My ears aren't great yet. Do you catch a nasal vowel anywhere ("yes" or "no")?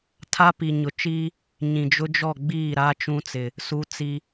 yes